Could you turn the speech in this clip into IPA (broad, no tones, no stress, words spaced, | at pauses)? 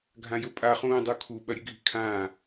ɡʱãjɵpʼa χũːdˤukʰu ɓɐɾʲɨɡʱi̤kʰãː